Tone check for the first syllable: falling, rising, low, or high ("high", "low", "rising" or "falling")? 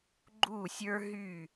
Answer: falling